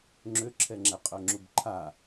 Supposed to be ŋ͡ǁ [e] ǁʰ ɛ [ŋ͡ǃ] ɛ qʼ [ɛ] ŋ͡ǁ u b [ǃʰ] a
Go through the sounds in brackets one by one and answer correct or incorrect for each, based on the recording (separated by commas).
incorrect, incorrect, incorrect, correct